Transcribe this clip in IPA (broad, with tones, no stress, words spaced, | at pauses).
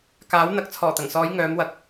kaː˨˥w n̪ɐ˨k̚t͡sʰɔː˨˩t̪ɐ˨˩ŋsɔː˨˧j ŋœː˨˧mwɐ˧k̚